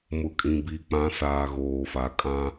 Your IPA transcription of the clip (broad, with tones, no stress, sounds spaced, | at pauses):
m ʊ˨ kʼ ĩ˨ b iː˨ k͡p ã˨˦ s aː˨ ɣ oː˨ f a˨ kʼ ã˦